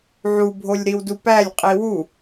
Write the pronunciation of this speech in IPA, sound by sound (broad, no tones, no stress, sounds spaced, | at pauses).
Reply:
ʕ u bʱ o lʲ ɾ i w d u p æ lʲ qʼ i w u